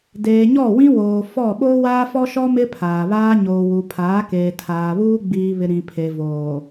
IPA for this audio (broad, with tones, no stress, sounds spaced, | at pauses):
d eː˨ ɲ ɔ˦˨ w ĩ˦ w oː˨ f ɔ˦˨ ɓ oː˦ w aː˦ f ɔ˦ ʃ ɔ˦ m ɪ˦ pʰ aː˨ β aː˦ ɲ oː˨ w u˨ pʰ aː˨˦ k eː˨ tʰ aː˨ β uː˦ ɡ͡b iː˨ β ɪ˨ ɾ ĩ˨ pʰ e˨ v oː˨